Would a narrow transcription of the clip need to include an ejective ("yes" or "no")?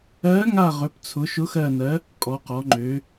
yes